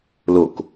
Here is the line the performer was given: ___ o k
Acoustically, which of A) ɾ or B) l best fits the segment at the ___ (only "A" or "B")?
B